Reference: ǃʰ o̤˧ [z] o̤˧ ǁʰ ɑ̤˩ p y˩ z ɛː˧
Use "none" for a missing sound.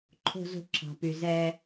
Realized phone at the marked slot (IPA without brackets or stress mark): z